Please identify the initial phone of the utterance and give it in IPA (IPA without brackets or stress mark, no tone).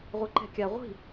ʁʷ